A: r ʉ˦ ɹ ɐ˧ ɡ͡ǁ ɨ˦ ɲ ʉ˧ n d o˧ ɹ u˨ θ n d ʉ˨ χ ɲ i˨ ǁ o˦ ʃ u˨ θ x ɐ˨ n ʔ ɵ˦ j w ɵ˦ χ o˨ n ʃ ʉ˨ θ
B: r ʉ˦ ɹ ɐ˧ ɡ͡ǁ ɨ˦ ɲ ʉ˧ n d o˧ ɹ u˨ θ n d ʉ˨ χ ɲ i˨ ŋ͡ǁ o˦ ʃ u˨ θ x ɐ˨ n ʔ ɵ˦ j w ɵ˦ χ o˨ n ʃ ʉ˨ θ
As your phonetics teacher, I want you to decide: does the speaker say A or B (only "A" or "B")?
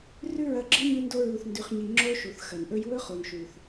B